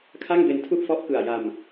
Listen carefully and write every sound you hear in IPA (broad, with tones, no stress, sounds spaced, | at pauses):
kʰ a˥˩ ŋ b e˧ n tʰ u˥˩ ʔ f ɔ˦˥ ʔ k ɯ˨˩ a̯ j a˧ m